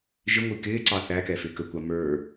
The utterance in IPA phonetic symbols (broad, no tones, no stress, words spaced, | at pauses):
ʒɪŋʷi kɪːǀɑ θækɛ fɪːkəkʷɑ mə˞